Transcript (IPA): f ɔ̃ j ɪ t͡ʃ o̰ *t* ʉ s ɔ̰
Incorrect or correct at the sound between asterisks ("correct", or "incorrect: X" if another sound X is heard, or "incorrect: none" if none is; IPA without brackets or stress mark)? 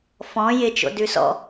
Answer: incorrect: d